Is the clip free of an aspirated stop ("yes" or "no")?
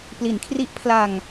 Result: no